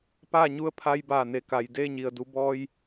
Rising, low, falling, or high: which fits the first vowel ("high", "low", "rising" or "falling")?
falling